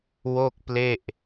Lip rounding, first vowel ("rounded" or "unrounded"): rounded